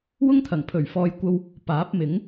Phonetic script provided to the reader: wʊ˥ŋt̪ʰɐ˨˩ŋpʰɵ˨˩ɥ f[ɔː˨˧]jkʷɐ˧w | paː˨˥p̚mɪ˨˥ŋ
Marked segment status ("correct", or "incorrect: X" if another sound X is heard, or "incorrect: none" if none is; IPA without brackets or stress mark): correct